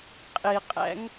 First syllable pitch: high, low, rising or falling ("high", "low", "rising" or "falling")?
low